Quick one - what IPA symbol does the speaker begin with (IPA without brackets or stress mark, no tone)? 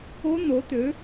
o